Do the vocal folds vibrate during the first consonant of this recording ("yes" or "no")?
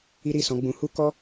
yes